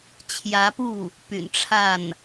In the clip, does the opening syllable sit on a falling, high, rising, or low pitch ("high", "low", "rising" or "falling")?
rising